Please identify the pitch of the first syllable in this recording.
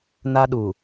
high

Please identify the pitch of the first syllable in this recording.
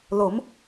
rising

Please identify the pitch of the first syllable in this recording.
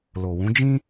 low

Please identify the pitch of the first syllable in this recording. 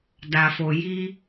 low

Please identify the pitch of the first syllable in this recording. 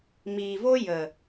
low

